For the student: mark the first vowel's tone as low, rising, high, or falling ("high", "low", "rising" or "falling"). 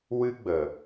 high